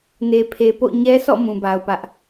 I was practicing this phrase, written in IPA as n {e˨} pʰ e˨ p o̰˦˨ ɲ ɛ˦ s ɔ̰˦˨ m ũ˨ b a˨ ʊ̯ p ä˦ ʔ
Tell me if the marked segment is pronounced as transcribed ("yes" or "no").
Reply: yes